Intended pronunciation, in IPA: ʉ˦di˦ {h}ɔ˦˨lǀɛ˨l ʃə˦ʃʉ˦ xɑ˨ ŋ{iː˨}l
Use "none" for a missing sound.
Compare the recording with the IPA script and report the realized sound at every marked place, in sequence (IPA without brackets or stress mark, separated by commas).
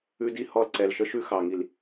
h, i˨